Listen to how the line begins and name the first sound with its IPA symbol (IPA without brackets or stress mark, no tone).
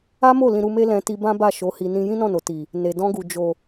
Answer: a